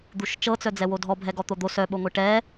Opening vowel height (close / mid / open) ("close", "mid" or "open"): close